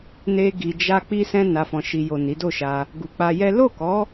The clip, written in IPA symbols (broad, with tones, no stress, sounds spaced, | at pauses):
n e˧ ɡ i˨ d͡ʒ a˧ k͡p i˧ s ɛ̃˧ n a˨ f ɔ̃˨ ʃ i˨ j o˨ n i˨˦ d o˦˨ ʃ a˧ | ɡ u˨ k͡p a˧ j ɛ˦ l o˦˨ k ɔ˨˦